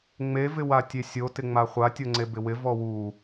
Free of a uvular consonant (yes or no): no